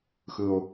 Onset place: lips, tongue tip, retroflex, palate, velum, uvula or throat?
velum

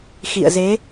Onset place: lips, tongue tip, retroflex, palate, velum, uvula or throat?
velum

